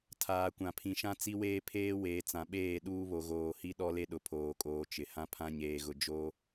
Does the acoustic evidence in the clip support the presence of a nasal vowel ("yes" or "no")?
yes